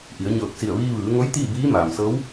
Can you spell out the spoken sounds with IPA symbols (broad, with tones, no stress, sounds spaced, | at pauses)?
ʔ i˩˧ ə̯ ɲ ɤː˧˩ k̚ s i˧˩ ə̯ ʋ iː˧ ʋ ɯː˩˧ ŋ o˧˥ j t̪ iː˥˨ b iː˧˥ m aː˩ m s ɤː˧˥ w